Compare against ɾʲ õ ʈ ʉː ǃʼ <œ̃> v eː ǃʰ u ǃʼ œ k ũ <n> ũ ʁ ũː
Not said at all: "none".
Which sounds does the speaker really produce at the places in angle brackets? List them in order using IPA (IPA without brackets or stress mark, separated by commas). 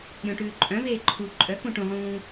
œ̃, ʈ